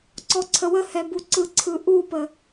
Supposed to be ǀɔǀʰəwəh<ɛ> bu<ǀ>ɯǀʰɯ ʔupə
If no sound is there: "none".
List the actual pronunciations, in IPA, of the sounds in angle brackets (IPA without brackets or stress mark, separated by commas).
ɛ, ǀ